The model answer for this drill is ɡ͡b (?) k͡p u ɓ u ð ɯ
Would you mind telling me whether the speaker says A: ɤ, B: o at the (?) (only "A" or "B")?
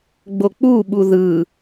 B